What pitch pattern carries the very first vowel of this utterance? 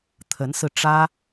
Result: rising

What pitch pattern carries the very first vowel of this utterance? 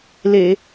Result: low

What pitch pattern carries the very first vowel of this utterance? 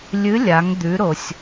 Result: rising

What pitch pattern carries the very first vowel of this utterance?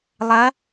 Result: rising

